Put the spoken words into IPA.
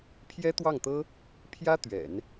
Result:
pʰ j ɛ˥ t̪ w ɑ˥˩ ŋ t̪ ɤ˥ | pʰ j ä˥ t̪ ɥ ɛ̰˨˩˦ n

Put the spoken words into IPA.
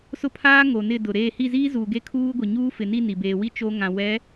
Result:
s ʊ˦ pʰ aː˦ ŋ o˨ n ɪ˦˨ d ʊ˨ ɾ eː˦˨ h i˦˨ z iː˦ z uː˨ ɡ e˦ kʰ uː˦ ɡʷ i˨ ɲ uː˦ f ɪ˨ n i˦˨ n i˨ b eː˨ w i˦ t͡ʃ o˦ ŋ ã˨ w ɛ˨˦

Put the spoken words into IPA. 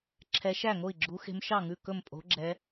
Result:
ǁʰ ɛ˨˦ ʃ æ˥˩ ŋ o˥˩ i̯ ɡ͡ǁ u˨˦ x e̤˨˦ m ʃ ɑ˥˩ ŋ ʉ˥˩ k ɵ˥˩ m pʼ o̤˨˦ ɡ͡ǁ ɛ˨˦

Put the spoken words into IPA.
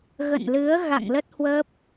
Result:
ɣ ə̰˧˨ n l ɨ˨˦ ə̯ ɣ a̰˧˨ ŋ l ə˦˥ t̚ h w ə˦˥ p̚

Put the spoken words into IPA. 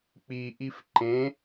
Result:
k͡p i ʔ i f ǃ ẽ

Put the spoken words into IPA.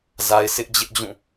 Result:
z a˦ ɪ̯ s ɪ˦ ʔ d͡ʑ ɪ˦ ʔ d͡ʑ ũ˦˨

